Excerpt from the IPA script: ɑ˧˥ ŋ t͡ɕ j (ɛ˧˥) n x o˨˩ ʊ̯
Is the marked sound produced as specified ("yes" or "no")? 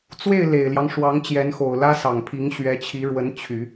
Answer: yes